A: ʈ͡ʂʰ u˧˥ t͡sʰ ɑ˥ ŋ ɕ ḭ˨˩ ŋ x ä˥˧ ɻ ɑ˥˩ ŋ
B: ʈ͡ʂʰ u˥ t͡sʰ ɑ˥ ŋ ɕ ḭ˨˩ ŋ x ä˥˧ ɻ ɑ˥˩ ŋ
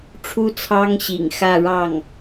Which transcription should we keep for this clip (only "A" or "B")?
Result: B